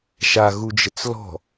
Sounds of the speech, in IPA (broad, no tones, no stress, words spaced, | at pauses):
ʃaɣud͡ʒət͡s lɔ̤